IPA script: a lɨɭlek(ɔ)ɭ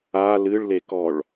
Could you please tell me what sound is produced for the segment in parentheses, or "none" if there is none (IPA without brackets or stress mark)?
ɔ